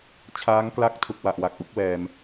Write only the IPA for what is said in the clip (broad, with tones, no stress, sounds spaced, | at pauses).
t͡ɕʰ aː˦˥ ŋ k l a˥˩ k̚ tʰ u˨˩ k̚ w a˨˩ ʔ w a˨˩ k̚ ʔ u˥˩ k̚ w ɛː˧ m